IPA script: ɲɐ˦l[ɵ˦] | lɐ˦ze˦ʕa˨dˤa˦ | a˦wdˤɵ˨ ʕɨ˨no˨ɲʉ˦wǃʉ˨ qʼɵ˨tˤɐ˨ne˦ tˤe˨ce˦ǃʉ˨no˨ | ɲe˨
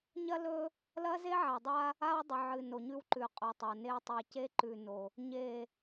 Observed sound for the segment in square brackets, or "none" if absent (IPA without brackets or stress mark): ɵ˦